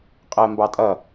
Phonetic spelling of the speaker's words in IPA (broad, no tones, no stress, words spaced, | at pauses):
qʼəːmbɑtʼʌ